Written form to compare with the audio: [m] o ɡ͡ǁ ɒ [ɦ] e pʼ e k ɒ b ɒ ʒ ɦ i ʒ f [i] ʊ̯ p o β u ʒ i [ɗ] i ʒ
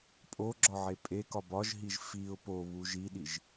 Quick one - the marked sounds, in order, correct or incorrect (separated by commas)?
incorrect, incorrect, correct, correct